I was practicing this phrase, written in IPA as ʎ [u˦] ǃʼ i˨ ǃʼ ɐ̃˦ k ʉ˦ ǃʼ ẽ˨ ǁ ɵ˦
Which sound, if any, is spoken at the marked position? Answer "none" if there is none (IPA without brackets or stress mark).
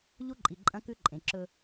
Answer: u˦